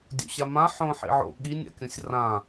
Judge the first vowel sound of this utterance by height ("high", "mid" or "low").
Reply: mid